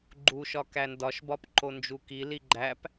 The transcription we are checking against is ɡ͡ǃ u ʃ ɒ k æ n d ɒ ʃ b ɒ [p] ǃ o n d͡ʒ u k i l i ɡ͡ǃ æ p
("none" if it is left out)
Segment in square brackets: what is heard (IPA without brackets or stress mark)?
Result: p